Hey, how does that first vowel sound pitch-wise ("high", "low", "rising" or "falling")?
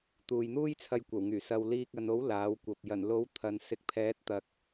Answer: low